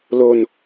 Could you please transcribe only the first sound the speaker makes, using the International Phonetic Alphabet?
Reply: l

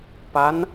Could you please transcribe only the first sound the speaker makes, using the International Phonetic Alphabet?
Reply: p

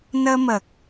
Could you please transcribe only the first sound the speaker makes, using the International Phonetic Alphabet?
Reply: n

